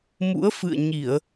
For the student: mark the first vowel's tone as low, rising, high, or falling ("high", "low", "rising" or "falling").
rising